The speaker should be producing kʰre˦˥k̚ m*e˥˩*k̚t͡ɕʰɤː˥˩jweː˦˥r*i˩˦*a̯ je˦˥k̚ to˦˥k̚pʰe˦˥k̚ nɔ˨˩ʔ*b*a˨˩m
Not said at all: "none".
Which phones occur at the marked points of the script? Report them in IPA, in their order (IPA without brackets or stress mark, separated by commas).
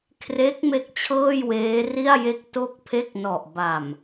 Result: e˥˩, i˥˩, b